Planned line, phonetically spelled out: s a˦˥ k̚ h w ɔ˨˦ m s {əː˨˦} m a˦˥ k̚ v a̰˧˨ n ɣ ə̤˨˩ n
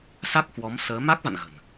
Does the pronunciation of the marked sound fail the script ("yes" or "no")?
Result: no